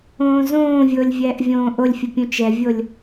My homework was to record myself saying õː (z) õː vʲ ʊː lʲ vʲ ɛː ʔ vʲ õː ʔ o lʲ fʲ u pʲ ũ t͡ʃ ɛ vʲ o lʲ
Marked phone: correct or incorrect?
correct